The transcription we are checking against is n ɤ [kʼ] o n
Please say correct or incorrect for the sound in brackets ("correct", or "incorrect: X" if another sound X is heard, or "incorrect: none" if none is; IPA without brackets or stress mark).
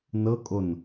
correct